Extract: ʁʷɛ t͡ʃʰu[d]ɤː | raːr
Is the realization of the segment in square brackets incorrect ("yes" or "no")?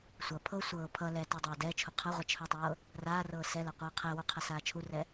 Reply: yes